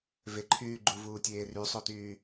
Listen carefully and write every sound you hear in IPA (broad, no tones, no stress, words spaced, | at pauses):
veǃʰyː ɡ͡ǃuvuːtʲeː rysˤotyː